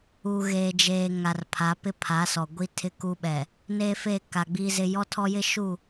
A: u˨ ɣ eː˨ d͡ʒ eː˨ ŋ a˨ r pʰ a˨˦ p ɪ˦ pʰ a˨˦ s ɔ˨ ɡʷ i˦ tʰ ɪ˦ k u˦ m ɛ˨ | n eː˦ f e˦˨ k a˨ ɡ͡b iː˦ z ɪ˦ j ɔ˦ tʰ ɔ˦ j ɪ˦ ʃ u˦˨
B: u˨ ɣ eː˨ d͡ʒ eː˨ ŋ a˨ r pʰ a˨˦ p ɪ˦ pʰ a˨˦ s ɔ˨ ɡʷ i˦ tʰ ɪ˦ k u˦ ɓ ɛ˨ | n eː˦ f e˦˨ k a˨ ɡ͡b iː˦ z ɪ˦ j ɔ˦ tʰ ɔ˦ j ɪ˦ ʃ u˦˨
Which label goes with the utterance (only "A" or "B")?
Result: B